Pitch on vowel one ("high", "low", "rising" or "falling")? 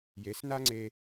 rising